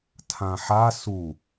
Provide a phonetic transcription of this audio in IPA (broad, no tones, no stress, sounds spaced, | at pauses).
tʰ ã ħ a s u